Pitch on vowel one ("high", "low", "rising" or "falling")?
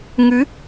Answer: rising